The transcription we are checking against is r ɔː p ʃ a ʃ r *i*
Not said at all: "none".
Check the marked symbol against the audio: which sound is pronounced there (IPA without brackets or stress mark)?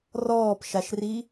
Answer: i